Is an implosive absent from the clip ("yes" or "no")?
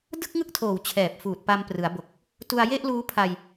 yes